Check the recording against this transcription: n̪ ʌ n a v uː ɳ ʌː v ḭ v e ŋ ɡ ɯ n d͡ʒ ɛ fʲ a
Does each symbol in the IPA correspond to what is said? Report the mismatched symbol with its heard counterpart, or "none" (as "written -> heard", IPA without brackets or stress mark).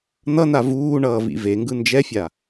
none